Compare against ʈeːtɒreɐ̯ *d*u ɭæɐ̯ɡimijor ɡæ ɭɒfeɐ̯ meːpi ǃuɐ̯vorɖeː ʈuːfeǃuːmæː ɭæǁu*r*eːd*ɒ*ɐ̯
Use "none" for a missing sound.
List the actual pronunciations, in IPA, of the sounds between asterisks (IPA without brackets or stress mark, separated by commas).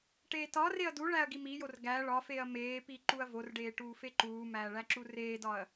d, r, ɒ